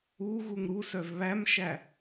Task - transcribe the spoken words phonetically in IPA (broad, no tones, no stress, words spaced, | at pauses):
uɣuŋ ɾusœv βæmʃæ